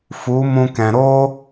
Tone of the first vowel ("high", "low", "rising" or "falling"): rising